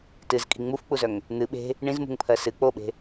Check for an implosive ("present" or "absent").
present